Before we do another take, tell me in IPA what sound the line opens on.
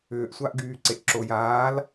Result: ʏː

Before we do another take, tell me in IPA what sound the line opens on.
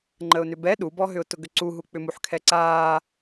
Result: ŋ͡ǃ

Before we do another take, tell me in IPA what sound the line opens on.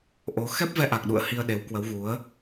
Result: ʔ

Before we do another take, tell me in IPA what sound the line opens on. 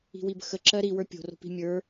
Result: i̤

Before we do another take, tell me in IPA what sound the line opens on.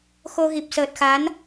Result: x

